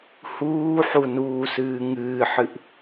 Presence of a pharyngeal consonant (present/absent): present